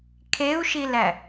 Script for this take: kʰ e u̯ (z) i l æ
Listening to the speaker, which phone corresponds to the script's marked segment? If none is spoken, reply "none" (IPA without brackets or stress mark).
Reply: ʃ